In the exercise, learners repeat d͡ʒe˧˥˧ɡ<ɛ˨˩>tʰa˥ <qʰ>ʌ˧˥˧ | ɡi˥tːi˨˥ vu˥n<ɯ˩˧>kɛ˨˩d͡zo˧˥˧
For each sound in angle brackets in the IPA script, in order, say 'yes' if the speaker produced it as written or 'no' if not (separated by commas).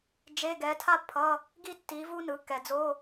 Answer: no, no, yes